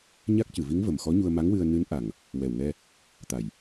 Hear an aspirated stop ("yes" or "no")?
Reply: no